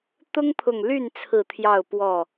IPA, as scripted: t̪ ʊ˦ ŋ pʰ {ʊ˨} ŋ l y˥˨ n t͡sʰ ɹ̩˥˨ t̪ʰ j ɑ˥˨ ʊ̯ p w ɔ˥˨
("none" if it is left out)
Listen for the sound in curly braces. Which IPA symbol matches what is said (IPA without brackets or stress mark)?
ʊ˨